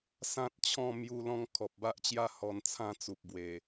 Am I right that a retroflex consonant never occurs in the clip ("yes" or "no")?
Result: yes